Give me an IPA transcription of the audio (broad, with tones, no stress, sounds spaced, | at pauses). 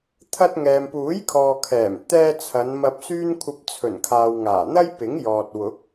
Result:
t̪ʰ ɐ˧ t̚ ŋ ɛː˨ m p uː˨˥ j kʰ ɔː˨ kʰ ɛː˨˩ m t̪ ɛː˧ t͡sʰ ɐ˨˧ n m ɐ˧ p̚ s yː˥ n kʷʰ ɐ˧ p̚ t͡sʰ ɵ˨˩ n kʰ aː˨ w ŋ aː˨˩ n̪ ɐ˥ j p ɪ˨˥ ŋ j ɔː˨ t̚ w ʊ˨˥ k̚